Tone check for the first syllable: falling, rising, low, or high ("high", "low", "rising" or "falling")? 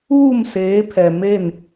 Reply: falling